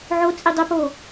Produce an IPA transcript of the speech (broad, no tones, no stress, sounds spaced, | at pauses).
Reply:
ʕ o t͡sʼ i dˤ ɘ p o